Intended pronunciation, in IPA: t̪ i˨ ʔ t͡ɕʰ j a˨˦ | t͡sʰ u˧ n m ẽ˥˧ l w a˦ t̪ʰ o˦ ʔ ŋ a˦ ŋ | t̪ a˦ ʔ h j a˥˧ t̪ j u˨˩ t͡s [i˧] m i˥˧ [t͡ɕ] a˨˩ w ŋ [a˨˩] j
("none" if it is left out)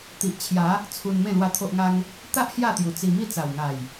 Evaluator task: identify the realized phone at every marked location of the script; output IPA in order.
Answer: i˧, t͡s, a˨˩

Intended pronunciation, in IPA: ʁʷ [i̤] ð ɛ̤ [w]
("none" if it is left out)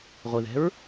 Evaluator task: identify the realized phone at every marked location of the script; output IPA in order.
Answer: i, ɹ

